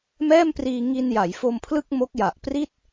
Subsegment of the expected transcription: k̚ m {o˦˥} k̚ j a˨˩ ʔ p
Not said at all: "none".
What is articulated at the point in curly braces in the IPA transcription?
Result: o˦˥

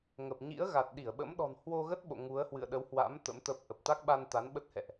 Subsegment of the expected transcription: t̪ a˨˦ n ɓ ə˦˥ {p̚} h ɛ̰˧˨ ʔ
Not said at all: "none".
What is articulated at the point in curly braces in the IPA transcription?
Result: t̚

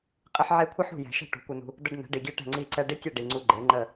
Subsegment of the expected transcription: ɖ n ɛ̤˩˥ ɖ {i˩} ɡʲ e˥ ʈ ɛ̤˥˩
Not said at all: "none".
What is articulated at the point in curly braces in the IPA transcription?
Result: i˩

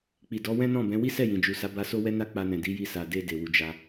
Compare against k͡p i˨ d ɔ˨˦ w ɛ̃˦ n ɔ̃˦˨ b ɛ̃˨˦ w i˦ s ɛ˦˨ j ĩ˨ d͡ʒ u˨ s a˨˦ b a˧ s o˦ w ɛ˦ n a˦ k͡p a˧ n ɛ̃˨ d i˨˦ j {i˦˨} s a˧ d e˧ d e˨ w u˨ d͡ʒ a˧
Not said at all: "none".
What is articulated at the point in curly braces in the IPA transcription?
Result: i˦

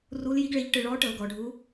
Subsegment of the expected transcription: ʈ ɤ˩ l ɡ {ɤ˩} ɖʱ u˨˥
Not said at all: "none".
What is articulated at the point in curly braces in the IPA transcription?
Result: ɔ˩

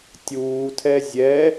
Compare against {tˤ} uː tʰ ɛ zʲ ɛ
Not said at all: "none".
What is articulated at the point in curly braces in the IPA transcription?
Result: tʲ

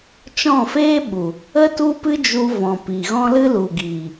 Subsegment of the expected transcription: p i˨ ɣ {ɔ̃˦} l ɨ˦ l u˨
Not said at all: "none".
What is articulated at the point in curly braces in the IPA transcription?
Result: ɔ̃˦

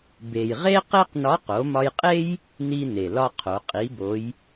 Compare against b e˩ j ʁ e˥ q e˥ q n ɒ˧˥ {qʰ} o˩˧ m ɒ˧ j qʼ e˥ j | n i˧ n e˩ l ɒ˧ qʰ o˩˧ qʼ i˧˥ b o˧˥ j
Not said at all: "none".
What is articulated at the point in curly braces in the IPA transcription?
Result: q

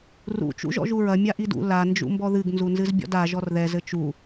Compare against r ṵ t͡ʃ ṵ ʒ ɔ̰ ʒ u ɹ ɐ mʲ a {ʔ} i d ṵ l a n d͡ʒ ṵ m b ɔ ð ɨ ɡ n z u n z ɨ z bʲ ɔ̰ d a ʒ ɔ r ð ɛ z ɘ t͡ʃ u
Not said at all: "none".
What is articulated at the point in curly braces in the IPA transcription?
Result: ʔ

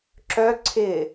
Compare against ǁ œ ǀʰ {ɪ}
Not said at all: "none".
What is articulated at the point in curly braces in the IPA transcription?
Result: ɪ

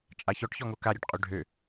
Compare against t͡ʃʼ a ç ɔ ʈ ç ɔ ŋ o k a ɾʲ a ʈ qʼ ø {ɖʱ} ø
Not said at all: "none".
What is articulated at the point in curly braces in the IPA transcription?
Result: ɖʱ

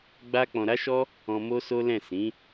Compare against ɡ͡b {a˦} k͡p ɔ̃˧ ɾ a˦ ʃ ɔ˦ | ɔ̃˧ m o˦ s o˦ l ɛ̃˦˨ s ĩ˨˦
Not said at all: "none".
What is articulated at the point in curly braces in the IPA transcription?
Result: a˦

